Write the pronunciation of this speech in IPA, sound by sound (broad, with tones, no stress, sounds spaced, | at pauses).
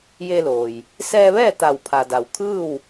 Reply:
j e˧ l oː˩ j | s ɛː˧ ʋ ɛː˥˨ t̪ a˧˩ w pʰ a˩ d a˩ w kʰ ɯː˥˨ w